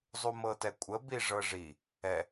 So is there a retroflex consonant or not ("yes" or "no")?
yes